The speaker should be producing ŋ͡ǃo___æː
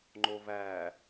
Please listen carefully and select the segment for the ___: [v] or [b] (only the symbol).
v